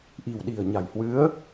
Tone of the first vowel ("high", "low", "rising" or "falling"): low